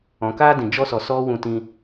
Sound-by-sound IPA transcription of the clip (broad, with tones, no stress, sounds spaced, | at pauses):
ɔ̃˧ k aː˦ d ĩ˨ d͡ʒ ɔ˦ s ɔ˧ s ɔ˧ w ũ˦ t ĩ˦